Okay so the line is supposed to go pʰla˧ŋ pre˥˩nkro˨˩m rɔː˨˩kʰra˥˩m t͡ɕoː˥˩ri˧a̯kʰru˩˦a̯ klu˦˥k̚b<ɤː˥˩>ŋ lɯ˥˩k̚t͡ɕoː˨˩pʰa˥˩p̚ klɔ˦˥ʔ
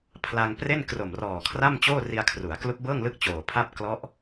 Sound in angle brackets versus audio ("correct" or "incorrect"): correct